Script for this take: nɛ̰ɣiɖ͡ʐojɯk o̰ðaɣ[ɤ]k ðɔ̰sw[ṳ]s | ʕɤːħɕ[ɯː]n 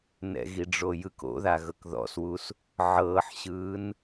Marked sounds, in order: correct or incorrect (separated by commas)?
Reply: correct, incorrect, correct